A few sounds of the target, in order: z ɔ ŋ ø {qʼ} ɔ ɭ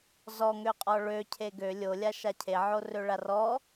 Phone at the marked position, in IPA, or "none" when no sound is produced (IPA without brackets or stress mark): qʼ